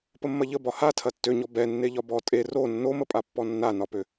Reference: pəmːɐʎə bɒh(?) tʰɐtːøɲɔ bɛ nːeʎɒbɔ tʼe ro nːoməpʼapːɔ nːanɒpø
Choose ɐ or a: a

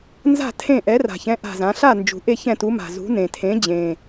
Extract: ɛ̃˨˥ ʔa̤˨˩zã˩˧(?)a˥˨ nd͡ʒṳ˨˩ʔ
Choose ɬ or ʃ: ɬ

